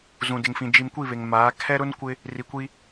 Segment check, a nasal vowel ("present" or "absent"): present